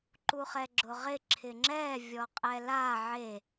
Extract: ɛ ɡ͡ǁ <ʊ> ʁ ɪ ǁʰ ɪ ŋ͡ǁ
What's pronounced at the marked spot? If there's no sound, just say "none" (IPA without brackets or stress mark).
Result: ʊ